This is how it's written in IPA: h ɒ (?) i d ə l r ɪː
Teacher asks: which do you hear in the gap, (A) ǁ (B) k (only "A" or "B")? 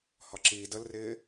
A